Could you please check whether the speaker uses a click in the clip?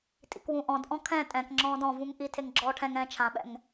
yes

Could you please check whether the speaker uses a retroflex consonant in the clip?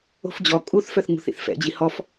no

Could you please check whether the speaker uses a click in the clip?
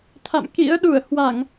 no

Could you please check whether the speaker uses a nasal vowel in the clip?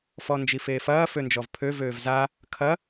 no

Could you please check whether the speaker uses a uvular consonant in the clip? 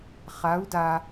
yes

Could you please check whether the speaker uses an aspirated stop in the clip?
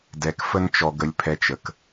yes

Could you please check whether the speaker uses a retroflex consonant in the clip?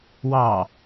no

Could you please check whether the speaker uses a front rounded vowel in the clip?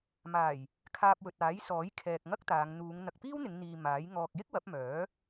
yes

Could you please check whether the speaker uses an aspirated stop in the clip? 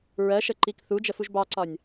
no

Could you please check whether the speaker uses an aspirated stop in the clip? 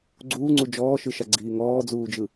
no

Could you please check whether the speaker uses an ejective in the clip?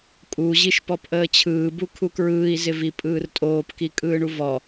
yes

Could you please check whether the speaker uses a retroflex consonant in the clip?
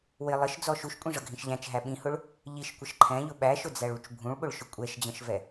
yes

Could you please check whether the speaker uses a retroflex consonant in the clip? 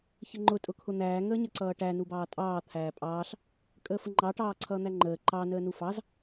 yes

